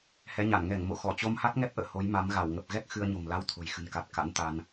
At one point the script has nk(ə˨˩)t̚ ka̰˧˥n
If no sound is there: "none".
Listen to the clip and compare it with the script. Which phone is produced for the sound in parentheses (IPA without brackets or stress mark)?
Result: a˨˩